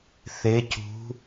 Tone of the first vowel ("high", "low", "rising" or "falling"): rising